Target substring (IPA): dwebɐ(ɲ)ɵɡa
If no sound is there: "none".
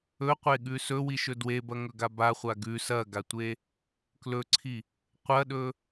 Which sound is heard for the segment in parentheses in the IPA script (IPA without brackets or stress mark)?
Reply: ŋ